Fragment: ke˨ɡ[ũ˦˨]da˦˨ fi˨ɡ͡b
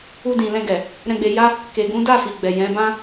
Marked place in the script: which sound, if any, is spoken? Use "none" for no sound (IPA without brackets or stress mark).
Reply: ũ˨˦